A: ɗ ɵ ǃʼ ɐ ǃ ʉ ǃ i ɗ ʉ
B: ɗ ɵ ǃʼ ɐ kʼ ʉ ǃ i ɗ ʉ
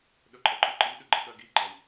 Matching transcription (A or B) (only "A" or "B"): A